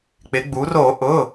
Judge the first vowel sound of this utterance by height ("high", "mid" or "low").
high